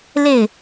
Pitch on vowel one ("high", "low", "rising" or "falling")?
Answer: falling